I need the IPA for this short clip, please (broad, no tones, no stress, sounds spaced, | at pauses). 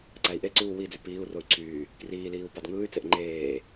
ǀ æ i̯ ʔ e ǀ uː w i d͡z y p iː u̯ r o y̯ ǀʰ yː | k r iː l iː u̯ p ɑ d ŋ ɯː y̯ t͡s e ʔ ŋ͡ǃ eː